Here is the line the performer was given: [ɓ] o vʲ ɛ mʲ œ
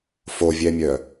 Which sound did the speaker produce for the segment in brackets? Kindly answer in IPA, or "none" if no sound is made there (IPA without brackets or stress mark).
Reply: f